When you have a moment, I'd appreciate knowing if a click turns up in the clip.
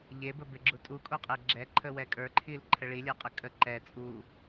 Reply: yes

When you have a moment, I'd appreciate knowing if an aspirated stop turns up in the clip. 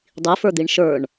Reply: no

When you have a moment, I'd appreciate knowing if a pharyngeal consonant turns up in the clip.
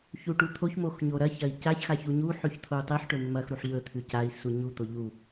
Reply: yes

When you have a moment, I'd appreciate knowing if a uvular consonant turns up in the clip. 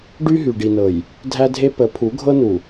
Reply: no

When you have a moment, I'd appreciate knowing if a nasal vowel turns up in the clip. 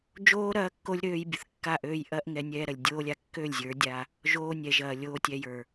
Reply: no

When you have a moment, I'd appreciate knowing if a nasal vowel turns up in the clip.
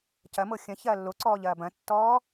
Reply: yes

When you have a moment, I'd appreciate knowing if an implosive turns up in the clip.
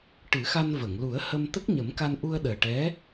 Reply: yes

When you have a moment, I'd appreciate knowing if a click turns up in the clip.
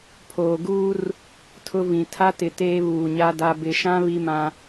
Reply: no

